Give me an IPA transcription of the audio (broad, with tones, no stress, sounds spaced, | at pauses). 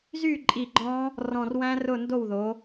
z y˥˩ ǃʼ i˧˩ ɡ͡ǃ ɔ̃˦˥ | r ɔ̃˧˩ r w æ̃˦˥ r ʊ˥˩ n d o˥˩ w ð o˨˦